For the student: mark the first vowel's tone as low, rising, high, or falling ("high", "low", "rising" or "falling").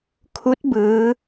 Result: rising